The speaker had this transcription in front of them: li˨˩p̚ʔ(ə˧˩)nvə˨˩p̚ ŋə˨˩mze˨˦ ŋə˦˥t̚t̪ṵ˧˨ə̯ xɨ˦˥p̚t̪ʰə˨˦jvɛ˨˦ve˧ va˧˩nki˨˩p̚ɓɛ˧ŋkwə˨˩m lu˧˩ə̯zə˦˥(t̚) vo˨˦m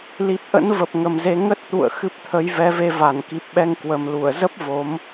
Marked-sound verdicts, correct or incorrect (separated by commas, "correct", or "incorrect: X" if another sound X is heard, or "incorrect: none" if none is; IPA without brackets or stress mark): incorrect: ə̰˧˥, incorrect: p̚